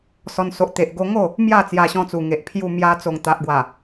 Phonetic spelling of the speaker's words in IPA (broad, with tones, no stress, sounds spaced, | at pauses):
s ɔ˧ n s o˨ ʔ t̪ e˨ ʔ ɡ o˧ ŋ o˥˧ | m j a˥˧ t͡s j a˧ ɕ ɔ̃˧ t͡s u˨˩ ŋ e˨ ʔ pʰ j u˧ m j a˧ t͡s o˨˩ ŋ t̪ a˨ ʔ ɡ w a˨˩